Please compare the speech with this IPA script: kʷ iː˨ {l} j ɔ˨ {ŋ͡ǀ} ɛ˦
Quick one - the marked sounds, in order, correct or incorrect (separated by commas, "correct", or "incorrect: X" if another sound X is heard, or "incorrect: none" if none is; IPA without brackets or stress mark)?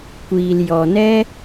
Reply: correct, incorrect: n